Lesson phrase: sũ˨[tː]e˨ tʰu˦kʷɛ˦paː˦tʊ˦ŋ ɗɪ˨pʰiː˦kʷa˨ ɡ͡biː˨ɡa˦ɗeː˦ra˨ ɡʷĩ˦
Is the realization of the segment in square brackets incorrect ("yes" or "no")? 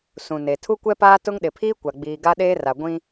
yes